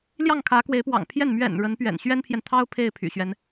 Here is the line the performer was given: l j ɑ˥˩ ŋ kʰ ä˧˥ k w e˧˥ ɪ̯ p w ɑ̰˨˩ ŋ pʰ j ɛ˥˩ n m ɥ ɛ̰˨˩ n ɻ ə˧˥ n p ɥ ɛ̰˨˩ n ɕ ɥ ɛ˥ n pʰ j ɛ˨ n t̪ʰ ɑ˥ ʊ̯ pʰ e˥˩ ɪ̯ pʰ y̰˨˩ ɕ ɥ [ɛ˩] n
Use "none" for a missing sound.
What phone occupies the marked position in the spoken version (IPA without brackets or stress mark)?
ɛ˦